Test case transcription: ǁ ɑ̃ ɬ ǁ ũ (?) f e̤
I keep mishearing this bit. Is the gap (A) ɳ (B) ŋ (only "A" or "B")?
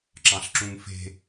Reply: B